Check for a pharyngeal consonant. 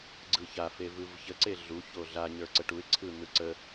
absent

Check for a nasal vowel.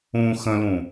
present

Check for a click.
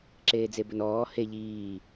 present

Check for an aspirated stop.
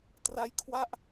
present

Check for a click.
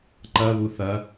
present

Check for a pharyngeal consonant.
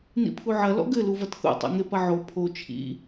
present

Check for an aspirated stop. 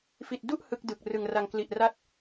absent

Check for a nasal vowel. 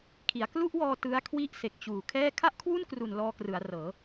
absent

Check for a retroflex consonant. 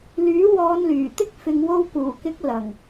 absent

